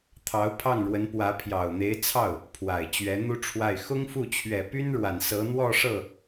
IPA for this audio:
t̪ʰ ɑ˧˥ ʊ̯ pʰ ɑ˥˩ ŋ ɻ w ə˧˥ n p w ä˧˥ pʰ j ɑ˨˩ ʊ̯ n̪ e˧˥ ɪ̯ t͡sʰ ɑ˥˩ ʊ̯ | pʰ w a˨˩ ɪ̯ t͡ɕ ɥ ɛ˧˥ n̪ u˥ ʈ͡ʂʰ w a˥˩ ɪ̯ x ʊ˥ ŋ f u˥˩ t͡ɕʰ ɥ ɛ˨˩ p y˥ n ɻ w a˨˩ n s ɤ˧˥ n̪ w ɔ˥˧ ʂ ɤ˥˩

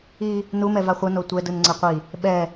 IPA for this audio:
i | n u m ɛ v a χʷ ʌ n o tʷ ɛ d ɯ n ŋ͡ǀ ɛ qʷ i | ɓ ɛ

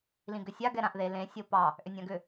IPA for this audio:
l ĩ ɡ ʏ sʲ a ɡ ɛ ɾ ã ʔ ð e l ẽ sʲ o p ɑ | ʔ ʏ nʲ ã ɡ ʏ

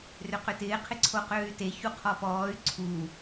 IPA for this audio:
r ʏ q ʏ t ɪː qʰ ɪ ǀʰ o q øː y̯ t e ç u qʰ ɔ p ɔː y̯ ǀʰ u

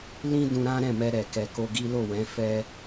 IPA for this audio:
l ĩ˦ d ũ˧ ɾ ã˦ ɾ ɛ̃˦˨ m ɛ˧ ɾ ɛ˨ k ɛ˨ k o˧ ɡ i˦ l o˦˨ w ɛ̃˨˦ f ɛ˧

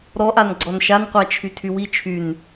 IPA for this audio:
ɾ ɔ ʔ a n ɡ͡ǀ ɔ n ʃ a n qʷ a t͡ʃʰ y tʰ y w i t͡ʃʰ y n

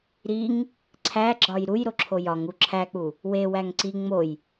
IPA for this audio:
ɾ i ŋ | ǀʰ æ ɡ͡ǁ ɒ j ɾ u j ɾ o ǁʰ o j ɒ ŋ u ǁʰ æ k͡p u | w e w æ ŋ ǀ i ŋ͡m o j

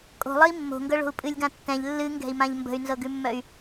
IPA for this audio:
kʼ o̤ lˠ ɨ i̯ mː o̤ ŋ ɡ ɤ ɭ o̤ u̯ pʼ ɨ lʲ ɡ ã tː ɛ̃ ʎ lː ɨ ŋ ɡ ɛ̤ i̯ m ã ʎ m b ə̤ y̯ n z ɤ ɡ ʉ mː œ y̯

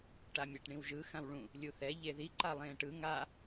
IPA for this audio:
ʈ a mʲ a ʈ ɳ ĩ w ʒ ɯ x ã w ɭ ũ | lʲ u θ ɛ ʎ e ð i ǃ a lˠ ẽː ʈ ɯ ŋ a

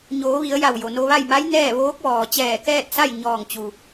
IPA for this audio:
ɲ oː˩˧ ʋ i˩˧ ə̯ j a˧˩ w j o˩ n o˧ ʋ a˥˨ j m a˧˥ j n ɛː˥˨ ʋ oː˧˥ k̚ ʋ ɔː˩ t͡ɕ ɛː˧˩ k ɛː˥˨ t̚ s a˥˨ j ɲ ɔː˧˩ ŋ t͡ɕ u˩

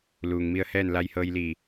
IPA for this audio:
l uː˩ ŋ m i˧ ə̯ h ɛː˥˨ n l a˧ j h ɤː˧ j l iː˧˩

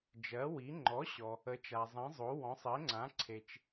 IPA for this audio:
d͡ʒ ɜ˨˥ w i˨˥ ŋ͡ǃ ɔ˨˥ ɕ ɔ˨ | ə˨˥ t͡ʃ a˨ zˤ ĩ˨˥ zˤ o˨˥ w ɔ̃˨˥ sˤ e˨˥ ŋ͡ǀ ã˨˥ ǀʰ e˨ t͡ʃ

